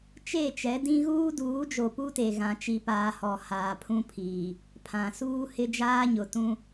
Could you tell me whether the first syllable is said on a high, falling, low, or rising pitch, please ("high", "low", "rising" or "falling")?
falling